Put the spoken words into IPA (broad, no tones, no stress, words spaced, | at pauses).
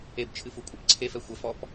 ebt͡ʃʰɨfukʷʼɘp ǀʰefɛ xʷɐfɔp